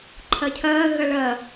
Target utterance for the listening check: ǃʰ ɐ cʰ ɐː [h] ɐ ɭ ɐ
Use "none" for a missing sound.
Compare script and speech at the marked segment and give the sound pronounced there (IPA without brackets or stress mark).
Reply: ɣ